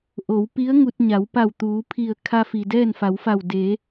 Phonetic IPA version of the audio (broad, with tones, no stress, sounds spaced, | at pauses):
ʔ o˩˧ w p i˧˥ ə̯ ŋ u˧ t̚ ɲ a˩˧ w p a˧˩ w t̪ uː˩˧ pʰ i˧˩ ə̯ kʰ a˧ f i˩ d ɛː˥˨ n f a˩˧ w f a˧˩ w d eː˩˧